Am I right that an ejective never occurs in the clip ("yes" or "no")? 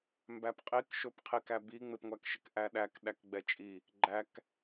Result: no